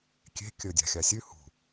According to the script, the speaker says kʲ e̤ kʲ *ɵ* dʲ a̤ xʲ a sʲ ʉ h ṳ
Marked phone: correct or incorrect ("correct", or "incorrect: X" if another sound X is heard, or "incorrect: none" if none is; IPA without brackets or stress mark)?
correct